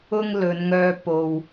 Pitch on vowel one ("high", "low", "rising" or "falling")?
high